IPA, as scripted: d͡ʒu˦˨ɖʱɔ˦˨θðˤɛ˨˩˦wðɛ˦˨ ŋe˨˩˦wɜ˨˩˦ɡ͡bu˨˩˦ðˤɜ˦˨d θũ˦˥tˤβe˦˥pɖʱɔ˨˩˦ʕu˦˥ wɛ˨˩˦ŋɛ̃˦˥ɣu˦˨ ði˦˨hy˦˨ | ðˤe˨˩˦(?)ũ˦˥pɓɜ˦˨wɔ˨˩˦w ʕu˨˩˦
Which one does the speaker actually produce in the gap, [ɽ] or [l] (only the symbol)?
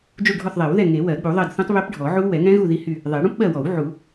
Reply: ɽ